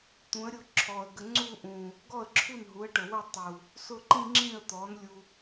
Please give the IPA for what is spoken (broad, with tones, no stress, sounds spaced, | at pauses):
t̪ ũ˩˥ ə̯ ɾʲ ʊ˧ ǁʰ ɔ˨˩ ə̯ ɡ ə˧ ŋ͡ǀ u˥˧ ʔ ũ˨˩ | ɡ ɔ˥˩ ə̯ ǁʰ u˥˩ n ɦ u˩˥ ə̯ ʈ ə˨˩ w ə˥˧ tˤ u˨˩ | s ʊ˥˩ ǃ ĩ˥˧ ŋ͡ǁ ĩ˥˩ ə̯ t̪ ɔ˩˥ n lʲ u˧